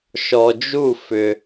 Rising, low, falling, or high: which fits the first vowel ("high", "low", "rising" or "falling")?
low